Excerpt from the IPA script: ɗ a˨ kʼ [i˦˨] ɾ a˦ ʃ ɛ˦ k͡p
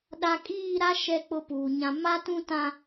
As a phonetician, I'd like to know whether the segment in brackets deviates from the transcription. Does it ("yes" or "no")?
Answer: yes